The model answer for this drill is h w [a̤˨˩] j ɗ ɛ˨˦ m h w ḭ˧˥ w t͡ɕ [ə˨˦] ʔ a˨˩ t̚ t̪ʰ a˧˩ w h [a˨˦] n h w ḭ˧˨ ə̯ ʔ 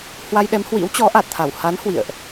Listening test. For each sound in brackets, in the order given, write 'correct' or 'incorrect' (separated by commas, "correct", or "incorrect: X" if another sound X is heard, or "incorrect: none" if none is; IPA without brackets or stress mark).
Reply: incorrect: a˧, incorrect: ɔ˨˦, correct